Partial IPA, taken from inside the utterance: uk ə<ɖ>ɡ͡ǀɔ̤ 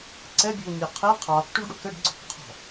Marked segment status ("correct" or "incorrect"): correct